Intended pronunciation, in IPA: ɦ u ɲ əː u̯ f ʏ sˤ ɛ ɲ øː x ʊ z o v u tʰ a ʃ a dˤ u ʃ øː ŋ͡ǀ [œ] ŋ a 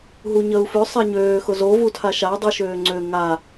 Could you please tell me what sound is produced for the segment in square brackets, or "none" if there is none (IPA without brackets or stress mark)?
ø